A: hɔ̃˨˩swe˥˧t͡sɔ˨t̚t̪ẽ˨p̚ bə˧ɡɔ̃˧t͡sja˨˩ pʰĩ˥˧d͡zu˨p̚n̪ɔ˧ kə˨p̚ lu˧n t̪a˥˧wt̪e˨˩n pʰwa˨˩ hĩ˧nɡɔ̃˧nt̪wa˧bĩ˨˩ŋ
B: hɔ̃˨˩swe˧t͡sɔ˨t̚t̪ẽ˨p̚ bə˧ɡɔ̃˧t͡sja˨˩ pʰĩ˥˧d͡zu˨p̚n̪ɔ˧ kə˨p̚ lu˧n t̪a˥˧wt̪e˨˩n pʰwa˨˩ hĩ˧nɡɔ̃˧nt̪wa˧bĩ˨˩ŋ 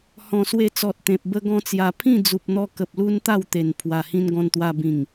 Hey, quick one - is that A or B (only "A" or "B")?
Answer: B